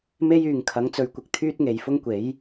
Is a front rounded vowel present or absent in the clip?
present